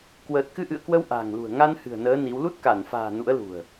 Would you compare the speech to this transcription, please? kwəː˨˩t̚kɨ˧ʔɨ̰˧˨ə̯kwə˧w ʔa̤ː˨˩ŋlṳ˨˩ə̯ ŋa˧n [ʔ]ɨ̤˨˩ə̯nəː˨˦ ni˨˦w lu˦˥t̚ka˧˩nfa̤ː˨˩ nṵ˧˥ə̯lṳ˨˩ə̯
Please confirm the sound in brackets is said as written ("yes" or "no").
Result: no